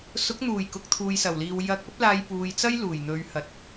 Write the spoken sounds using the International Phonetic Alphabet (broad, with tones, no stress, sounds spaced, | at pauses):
s ʊ˨˥ k̚ n̪ uː˨˩ j k ʊ˨ k̚ t̪ʰ uː˨ j s ɐ˨˩ w l iː˨ w j ɐ˧ k̚ ɐ˥ p̚ l aː˧ j p uː˨ j t͡s ɐ˥ j l uː˨˩ j n̪ ɵ˨˧ ɥ h ɐ˨˥ t̚